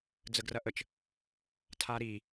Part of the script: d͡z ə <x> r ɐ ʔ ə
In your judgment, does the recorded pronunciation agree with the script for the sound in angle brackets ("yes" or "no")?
no